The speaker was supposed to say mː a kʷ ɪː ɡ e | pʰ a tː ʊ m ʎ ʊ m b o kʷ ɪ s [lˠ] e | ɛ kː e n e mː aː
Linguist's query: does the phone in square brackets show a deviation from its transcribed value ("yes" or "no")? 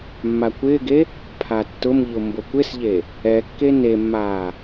yes